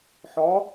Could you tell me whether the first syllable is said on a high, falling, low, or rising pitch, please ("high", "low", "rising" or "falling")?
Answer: rising